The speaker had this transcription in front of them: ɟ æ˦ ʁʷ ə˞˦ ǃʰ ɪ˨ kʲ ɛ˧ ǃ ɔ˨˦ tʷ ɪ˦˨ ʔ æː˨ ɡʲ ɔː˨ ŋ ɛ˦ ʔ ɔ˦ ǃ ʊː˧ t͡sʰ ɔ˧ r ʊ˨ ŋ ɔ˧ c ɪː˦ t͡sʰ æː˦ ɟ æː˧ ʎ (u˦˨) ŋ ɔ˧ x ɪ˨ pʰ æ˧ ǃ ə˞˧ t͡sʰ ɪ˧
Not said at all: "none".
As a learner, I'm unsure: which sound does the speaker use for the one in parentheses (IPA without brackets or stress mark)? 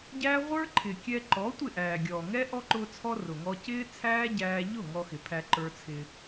ʊ˦˨